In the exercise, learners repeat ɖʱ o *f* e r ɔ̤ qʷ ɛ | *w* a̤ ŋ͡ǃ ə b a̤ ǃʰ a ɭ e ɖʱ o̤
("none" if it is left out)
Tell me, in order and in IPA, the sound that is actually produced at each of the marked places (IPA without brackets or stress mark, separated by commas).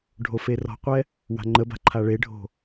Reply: f, w